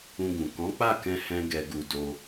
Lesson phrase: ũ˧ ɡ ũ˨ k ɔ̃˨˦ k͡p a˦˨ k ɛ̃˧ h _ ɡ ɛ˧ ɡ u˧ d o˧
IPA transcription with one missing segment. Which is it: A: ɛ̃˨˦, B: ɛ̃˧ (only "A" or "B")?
B